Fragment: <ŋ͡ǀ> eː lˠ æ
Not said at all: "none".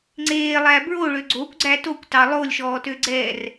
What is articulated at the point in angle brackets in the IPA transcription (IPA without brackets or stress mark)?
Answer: ŋ͡ǀ